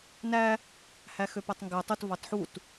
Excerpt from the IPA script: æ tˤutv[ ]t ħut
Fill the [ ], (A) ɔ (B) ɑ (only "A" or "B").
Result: B